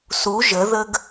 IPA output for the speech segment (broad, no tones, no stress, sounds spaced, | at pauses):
s u ʒ ə ð ə ɡ